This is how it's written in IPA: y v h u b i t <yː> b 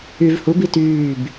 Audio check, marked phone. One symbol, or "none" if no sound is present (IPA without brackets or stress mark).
yː